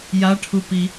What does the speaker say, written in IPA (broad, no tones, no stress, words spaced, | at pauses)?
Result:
jaʈʰupi